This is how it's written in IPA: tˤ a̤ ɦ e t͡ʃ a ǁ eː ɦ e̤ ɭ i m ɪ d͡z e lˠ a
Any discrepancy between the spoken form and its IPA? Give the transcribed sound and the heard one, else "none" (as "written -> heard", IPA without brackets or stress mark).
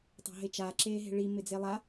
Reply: none